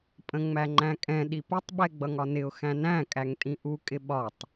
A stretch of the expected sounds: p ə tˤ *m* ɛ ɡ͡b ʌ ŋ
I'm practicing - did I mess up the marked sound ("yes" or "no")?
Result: yes